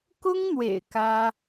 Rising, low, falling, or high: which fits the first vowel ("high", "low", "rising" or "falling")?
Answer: high